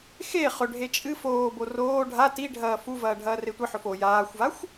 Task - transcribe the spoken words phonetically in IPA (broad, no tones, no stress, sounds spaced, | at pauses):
x e χ ɵ ɖʱ e t͡ʃʼ ɨ f oː b o r oː ɖʱ a t i ɖʱ ɐː f u v ɐː ɖʱ ɐː r e tʷ ɨ ħ ɵ f o j aː xʷ v a xʷ